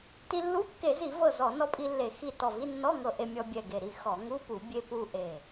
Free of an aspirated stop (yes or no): yes